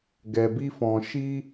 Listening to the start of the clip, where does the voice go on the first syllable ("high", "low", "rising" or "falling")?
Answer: low